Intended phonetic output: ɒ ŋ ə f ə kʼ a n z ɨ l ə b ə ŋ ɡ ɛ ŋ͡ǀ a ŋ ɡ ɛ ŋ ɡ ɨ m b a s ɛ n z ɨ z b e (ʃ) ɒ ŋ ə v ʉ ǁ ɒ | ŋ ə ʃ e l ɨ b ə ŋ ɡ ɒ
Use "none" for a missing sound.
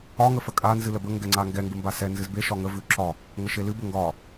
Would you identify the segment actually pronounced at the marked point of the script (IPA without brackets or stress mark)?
ʃ